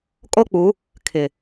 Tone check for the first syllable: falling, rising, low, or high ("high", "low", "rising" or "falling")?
high